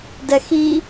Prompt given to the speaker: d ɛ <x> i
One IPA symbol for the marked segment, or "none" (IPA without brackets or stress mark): x